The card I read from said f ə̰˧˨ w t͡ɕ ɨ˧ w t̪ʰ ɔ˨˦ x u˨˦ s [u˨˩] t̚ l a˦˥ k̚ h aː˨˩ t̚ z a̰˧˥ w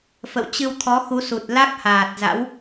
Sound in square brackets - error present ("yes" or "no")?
no